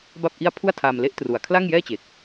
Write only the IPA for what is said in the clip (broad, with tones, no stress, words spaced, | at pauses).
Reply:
ba˥˩p̚ʔi˥˩a̯ pʰu˥˩a̯tʰaː˧m le˦˥ʔ tru˨˩a̯kʰla˥˩ŋjɛː˥˩t͡ɕe˨˩k̚